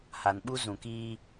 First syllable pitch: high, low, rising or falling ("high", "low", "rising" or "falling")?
low